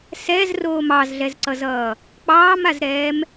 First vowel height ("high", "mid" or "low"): mid